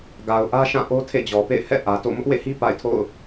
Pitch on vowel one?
low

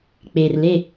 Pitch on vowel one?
low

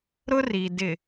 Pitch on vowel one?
high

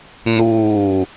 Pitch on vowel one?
falling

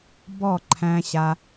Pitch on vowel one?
falling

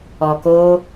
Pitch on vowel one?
low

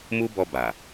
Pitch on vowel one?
high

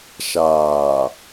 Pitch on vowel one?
low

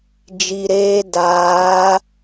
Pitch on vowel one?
low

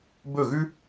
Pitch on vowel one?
falling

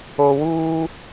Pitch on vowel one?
low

